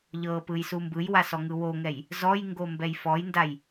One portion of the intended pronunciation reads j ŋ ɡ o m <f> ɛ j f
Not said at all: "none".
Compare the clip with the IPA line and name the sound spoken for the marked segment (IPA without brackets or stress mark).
b